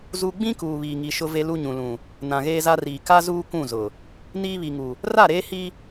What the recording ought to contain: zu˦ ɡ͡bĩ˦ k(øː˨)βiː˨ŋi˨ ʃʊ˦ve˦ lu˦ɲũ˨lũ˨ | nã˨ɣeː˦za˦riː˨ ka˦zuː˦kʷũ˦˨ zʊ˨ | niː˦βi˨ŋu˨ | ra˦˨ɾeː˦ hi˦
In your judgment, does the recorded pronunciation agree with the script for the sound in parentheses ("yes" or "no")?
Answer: no